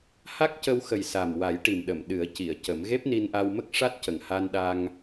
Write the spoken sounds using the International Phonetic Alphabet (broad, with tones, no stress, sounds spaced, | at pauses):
h a˦˥ k̚ c ə˧ w x ə˨˩ j s a˨˩ m w a˨˩˦ j ʈ i˨˩ m ɗ ə˨˩˨ m ɗ ɨ˨˩˦ ə̯ c i˨˩˨ ə̯ c ə˨˩˦ m ɣ e˦˥ p̚ n i˧ n ʔ a˧ w m ə˦˥ k̚ ʂ a˦˥ t̚ c ə˨˩ ŋ h a˧ n ɗ a˧ ŋ